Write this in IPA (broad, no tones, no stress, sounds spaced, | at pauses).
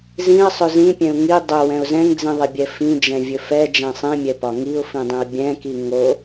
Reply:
z ĩ ə̯ sˤ ɵ z ĩ pʲ ɛ̃ ʊ̯ ŋ i dˤ ɵ w ɛ̃ ʊ̯ z ɛ̃ ŋ d͡z ĩ ðˤ i bʲ ɛ f ĩ d͡ʒ ɛ̃ vʲ ɵ f ɛ d͡ʒ ɛ̃ sˤ ĩ mʲ ɛ p ɒ ŋ i ʊ̯ f ĩ dˤ ĩ ʊ̯ bʲ ɛ̃ k i ŋ o